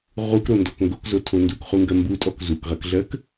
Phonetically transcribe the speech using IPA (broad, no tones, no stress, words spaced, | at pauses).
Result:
ʁukɾondɔk ŋɡokzotʰo ndukχuŋɡɜ mbutʼɔk zukʁɜkɮɜk